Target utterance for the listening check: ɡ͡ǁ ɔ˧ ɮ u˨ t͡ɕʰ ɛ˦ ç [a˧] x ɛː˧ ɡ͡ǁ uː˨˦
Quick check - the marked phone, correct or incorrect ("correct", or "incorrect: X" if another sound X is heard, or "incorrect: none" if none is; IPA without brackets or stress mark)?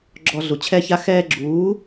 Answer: incorrect: a˦